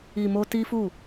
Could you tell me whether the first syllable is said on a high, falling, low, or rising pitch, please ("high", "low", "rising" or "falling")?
low